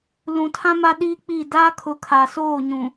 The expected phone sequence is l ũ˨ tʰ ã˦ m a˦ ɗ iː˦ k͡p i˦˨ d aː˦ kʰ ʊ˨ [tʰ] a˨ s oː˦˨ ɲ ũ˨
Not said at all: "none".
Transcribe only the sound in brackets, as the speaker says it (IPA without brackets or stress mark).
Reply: kʰ